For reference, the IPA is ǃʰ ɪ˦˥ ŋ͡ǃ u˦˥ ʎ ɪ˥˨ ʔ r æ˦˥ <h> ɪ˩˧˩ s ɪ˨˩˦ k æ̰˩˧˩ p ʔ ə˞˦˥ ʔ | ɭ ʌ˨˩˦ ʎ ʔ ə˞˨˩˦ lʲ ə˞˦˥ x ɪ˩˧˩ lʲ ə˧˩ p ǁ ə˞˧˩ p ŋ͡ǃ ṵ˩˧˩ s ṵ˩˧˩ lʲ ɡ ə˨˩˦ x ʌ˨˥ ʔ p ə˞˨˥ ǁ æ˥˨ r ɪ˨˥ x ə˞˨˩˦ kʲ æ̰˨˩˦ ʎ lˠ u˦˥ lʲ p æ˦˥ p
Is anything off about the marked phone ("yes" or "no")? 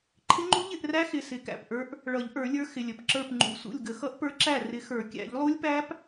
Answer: yes